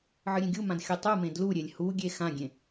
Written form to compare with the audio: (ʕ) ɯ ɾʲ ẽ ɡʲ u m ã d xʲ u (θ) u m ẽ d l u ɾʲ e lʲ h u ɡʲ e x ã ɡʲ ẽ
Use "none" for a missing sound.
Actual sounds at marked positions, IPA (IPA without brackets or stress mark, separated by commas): ʕ, tˤ